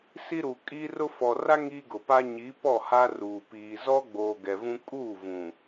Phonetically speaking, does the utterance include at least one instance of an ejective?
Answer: yes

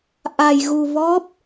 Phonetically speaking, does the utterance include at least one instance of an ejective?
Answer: no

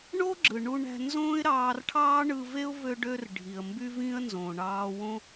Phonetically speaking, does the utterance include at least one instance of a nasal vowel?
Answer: yes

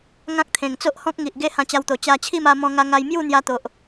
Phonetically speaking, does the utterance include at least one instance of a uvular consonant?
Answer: no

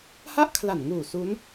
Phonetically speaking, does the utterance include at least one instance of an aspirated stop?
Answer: yes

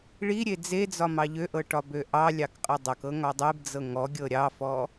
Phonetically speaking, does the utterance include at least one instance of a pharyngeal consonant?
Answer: no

